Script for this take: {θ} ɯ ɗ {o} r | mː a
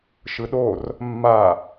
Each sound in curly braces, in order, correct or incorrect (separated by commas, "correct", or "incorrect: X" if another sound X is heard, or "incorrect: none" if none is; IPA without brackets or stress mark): incorrect: ʃ, correct